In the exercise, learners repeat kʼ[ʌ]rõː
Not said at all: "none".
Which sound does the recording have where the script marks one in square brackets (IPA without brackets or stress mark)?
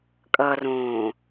ʌ